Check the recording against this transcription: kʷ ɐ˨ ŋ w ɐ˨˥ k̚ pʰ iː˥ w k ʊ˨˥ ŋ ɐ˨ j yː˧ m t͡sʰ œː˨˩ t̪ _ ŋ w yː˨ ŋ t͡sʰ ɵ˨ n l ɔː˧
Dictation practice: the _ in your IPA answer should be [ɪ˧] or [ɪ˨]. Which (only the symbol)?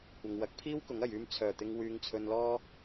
ɪ˨